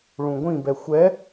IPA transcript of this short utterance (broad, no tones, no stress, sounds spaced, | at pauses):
ɭ ũ ɡʷ ĩ b ɛ xʷ ɛ